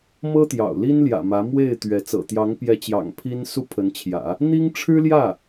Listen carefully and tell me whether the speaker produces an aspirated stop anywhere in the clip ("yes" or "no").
yes